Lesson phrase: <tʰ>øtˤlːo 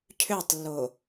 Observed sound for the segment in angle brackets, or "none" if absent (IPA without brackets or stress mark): cʰ